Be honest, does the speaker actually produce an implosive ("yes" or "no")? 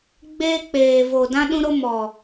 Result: yes